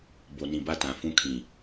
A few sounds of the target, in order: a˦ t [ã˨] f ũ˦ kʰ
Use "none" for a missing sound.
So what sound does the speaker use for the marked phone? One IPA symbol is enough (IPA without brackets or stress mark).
ã˨